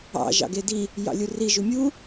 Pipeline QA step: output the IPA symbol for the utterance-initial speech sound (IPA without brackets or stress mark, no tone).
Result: ɑ̰